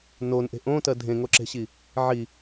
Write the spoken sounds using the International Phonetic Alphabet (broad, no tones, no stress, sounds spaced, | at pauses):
n o n ʔ e̤ ʔ õ t ɜ dʱ ẽ ŋ o ǁ e̤ ɕ i | ʕ i